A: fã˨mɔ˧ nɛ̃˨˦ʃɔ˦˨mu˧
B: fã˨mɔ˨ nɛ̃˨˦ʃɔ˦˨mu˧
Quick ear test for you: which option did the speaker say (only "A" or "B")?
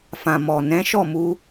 B